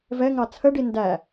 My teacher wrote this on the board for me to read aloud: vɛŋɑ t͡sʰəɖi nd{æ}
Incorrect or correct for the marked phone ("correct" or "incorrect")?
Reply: correct